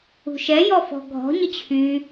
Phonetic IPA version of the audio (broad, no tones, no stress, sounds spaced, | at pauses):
ṳ ʃ ɛ j ɔ f ɔ̤ ɡʱ ɔ̤ ɲ ə t͡ɕʰ y